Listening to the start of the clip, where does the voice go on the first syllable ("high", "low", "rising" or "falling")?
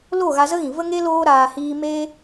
falling